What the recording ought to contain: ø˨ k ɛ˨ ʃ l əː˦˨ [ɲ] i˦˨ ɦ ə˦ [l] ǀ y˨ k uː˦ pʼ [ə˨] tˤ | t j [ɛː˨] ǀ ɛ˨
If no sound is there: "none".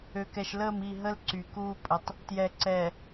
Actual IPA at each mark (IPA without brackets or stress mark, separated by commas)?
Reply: m, l, ə˨, ɛ˨